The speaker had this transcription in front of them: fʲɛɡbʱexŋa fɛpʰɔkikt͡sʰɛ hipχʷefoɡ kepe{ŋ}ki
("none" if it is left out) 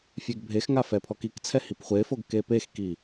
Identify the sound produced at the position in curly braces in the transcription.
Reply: x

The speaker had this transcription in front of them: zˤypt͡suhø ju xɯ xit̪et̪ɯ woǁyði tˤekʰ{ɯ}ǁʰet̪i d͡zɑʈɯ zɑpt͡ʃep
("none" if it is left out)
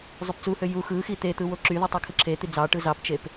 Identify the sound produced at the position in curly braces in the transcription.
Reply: ɯ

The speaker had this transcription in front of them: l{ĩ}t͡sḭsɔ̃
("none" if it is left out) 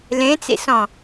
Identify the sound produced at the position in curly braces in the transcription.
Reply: ẽ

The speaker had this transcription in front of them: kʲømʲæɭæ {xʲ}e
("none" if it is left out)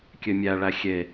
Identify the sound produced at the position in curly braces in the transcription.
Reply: xʲ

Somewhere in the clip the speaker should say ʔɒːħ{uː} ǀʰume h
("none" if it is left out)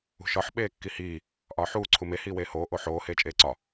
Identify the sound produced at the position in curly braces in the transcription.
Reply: uː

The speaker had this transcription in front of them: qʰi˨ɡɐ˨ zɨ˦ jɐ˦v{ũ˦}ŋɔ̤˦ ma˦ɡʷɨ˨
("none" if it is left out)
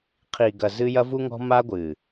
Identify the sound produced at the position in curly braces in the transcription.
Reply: u˦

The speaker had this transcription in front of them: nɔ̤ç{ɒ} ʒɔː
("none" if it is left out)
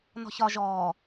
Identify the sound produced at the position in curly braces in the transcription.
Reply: ɒ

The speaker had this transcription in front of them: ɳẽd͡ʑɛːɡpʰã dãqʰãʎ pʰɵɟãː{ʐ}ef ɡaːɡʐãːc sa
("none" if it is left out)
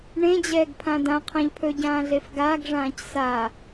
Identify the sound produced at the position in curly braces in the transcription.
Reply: ɮ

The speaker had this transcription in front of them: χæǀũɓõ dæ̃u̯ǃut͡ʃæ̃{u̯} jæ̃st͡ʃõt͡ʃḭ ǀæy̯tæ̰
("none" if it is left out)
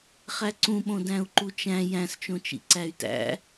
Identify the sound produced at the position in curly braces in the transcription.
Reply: none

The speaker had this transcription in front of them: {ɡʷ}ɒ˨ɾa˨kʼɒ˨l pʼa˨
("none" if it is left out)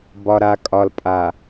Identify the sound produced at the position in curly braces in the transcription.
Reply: b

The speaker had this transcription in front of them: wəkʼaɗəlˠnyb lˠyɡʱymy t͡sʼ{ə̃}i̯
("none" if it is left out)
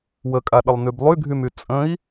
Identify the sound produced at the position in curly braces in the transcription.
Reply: ə̃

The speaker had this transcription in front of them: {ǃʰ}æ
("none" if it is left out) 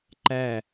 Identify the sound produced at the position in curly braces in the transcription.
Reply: ǃ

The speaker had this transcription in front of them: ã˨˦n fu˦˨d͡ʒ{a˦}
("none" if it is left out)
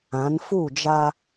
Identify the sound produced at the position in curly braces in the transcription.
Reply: a˦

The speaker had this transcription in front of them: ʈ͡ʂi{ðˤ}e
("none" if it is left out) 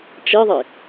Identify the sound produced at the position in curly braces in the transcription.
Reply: ðˤ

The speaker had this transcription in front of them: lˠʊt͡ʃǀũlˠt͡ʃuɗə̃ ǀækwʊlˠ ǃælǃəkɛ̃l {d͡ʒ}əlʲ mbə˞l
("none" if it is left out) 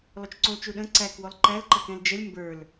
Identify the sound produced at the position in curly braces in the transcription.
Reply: d͡ʒ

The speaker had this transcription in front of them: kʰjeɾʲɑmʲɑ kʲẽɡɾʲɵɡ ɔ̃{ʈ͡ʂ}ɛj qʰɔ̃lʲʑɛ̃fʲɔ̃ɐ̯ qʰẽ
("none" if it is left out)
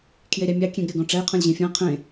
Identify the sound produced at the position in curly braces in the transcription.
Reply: ʈ͡ʂ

